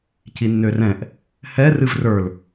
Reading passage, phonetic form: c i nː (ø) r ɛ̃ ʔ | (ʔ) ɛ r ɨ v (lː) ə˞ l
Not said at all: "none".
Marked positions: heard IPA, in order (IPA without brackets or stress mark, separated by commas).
ø, h, r